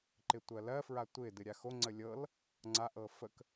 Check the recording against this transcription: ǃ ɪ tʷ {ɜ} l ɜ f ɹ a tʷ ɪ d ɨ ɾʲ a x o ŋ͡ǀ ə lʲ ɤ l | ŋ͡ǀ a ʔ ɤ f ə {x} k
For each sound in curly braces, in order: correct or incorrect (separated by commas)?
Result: correct, incorrect